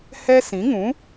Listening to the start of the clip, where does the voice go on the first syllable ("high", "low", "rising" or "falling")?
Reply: high